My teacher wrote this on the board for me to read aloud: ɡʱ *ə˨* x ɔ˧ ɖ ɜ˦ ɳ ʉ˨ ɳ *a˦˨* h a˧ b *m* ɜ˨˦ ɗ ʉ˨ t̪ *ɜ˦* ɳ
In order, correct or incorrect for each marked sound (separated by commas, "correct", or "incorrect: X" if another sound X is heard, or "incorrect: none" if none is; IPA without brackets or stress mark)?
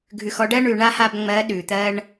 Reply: incorrect: ʉ˨, incorrect: a˦, incorrect: ŋ͡m, correct